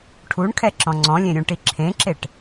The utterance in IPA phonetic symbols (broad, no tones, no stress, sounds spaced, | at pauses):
ʈʰ u ɳ kʰ ɛ ǁ ɔ̃ ŋ͡ǀ ɔ̃ lʲ ẽ ɾʲ ũ ʈ i ǁʰ ẽ ǁ e ʈ